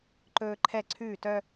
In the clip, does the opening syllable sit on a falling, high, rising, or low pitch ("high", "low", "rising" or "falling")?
high